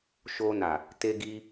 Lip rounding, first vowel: rounded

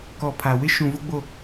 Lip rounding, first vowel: rounded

